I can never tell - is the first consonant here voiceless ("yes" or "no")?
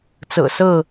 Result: yes